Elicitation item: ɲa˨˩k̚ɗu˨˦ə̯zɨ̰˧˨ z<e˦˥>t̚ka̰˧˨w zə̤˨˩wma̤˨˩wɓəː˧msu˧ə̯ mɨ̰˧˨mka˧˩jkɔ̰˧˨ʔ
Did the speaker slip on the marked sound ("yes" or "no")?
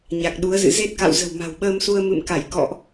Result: no